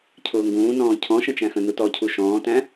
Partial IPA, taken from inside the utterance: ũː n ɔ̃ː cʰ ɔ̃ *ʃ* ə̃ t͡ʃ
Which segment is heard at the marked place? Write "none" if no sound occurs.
ʃ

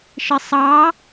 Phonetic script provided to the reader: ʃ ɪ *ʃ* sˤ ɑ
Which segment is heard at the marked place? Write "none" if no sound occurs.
none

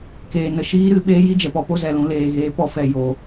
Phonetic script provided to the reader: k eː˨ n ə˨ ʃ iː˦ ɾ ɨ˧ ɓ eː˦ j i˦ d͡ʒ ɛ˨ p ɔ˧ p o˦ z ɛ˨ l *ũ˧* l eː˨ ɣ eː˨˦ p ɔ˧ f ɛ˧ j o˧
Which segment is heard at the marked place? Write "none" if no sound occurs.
ũ˧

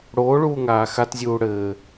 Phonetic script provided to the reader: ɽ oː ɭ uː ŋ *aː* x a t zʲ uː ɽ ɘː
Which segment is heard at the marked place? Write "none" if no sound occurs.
aː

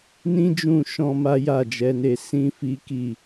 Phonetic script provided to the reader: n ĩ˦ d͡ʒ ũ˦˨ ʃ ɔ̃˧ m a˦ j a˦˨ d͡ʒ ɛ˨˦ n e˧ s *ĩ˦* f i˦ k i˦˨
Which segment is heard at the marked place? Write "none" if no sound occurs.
ĩ˦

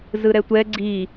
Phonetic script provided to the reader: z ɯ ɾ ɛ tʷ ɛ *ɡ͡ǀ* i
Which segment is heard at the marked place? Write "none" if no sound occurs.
ɡ͡ǀ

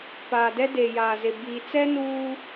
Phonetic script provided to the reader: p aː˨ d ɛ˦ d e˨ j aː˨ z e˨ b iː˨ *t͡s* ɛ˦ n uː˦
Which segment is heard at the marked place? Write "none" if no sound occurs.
t͡s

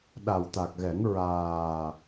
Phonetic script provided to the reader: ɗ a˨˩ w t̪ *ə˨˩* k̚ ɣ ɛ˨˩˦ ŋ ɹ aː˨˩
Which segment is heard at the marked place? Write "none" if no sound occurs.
a˨˩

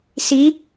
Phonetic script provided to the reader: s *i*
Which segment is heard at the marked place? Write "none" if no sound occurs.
i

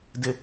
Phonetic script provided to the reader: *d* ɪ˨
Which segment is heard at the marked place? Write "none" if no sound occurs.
d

